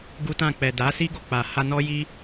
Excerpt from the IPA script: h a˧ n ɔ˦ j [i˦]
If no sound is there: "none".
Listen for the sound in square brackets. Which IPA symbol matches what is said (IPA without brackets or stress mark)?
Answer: i˦